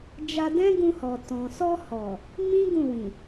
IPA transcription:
d͡ʒ a˧ d ɛ̃˦ ɡ ũ˧ h ɔ˨ t ɔ̃˨ s ɔ˧ h ɔ˨ | m ĩ˦ ɡ ũ˦˨ w ĩ˨

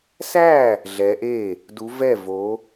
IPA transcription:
s æ˥˩ | ɮ ɛ˨˦ ʔ e˥˩ | d u˨˦ v ɛ˥˩ v o˨˦

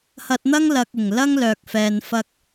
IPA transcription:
h ɐ˧ t̚ n̪ ɐ˥ ŋ l ɐ˨ k̚ ɪ˨˩ ŋ l ɐ˥ ŋ l œː˨ k̚ f ɛː˧ n f ɐ˥ k̚

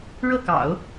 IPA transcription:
ɻ ɤ˥˩ k ɑ̰˨˩˦ ʊ̯

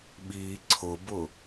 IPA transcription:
ɓ i ǀʰ ʊ b ʊ

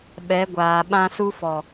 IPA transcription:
ɓ ɛ˨˦ ɡʷ aː˨ ɓ ã˦ s u˦ f ɔ˨

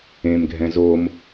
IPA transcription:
ẽ m ɡʱ ɛ̃ z o m

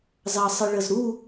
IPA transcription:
z ɑ sˤ ə ɭ ə z ɾ u

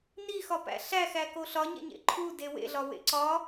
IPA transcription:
n i x ɒ p æ̰ ɬ æ x æ k o ɬ ɒ ɲ ḛ ɲ ḛ ǃʰ u d e w ḛ ɮ ɒ w ḛ ǀ ɒ

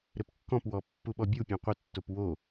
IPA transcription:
ɾ ɘ p kː ɔ̃ p w ɔ pː u ɓ ɔ bʲ u pʲ ɔ̃ qʷ ɘ tː o p w o

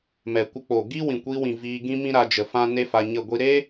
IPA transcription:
m ɛ˨ kʷ ə˧ k͡p o˨ ɡ i˦ w ĩ˨ kʷ i˧ w ĩ˨ v iː˧ ɡ ĩ˦ m ĩ˦ ɾ a˧ d͡ʒ ə˨ f ã˦ n e˦ f a˧ ɲ ə˦˨ ɡʷ i˦ ɾ e˦

